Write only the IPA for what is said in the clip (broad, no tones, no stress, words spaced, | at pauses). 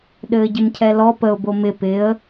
ɗɘːɟɪmcʰɛlɔ pəʊ̯ bomɪ pɪə̯